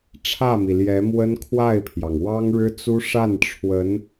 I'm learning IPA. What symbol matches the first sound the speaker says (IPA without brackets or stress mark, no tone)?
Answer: ʈ͡ʂʰ